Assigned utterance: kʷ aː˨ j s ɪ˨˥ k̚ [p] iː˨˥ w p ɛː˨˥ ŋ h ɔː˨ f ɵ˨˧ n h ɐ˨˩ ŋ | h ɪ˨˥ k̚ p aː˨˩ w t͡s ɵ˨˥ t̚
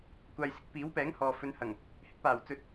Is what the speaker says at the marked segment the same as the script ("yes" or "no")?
yes